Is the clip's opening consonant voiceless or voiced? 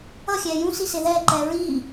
voiceless